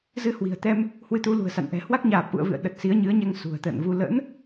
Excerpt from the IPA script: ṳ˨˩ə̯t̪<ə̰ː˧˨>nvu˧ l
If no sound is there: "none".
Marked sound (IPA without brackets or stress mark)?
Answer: ə̰ː˧˨